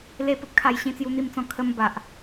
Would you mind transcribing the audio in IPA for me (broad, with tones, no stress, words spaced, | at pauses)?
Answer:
le˦pə˨p̚kʰa˧j ɕĩ˦t͡sju˦n̪i˥˧mt͡sɔ̃˥˧ kʰə˦m ba˨ʔ